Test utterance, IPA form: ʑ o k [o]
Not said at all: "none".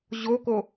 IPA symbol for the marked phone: o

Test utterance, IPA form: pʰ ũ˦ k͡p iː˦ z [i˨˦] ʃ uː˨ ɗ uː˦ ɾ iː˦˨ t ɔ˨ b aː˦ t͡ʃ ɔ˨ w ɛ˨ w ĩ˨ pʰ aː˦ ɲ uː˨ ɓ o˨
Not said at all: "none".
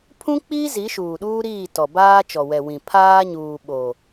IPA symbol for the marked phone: i˨˦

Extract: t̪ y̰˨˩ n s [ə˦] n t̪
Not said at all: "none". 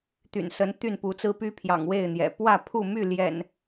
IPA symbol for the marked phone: ə˨˦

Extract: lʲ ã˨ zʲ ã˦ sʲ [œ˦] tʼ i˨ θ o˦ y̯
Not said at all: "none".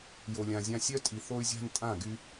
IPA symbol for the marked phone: œ˦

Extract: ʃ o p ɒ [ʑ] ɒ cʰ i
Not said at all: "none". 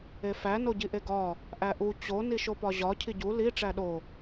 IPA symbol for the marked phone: ʑ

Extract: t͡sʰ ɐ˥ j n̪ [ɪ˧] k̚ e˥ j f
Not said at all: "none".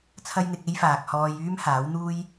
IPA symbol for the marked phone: ɪ˧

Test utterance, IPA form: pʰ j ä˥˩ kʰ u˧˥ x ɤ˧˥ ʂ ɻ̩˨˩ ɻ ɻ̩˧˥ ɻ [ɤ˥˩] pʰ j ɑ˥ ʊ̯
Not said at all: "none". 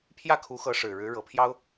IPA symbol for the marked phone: ɤ˨˩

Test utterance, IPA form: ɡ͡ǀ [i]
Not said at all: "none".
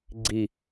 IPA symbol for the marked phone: i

